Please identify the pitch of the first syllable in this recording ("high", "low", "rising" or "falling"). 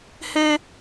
high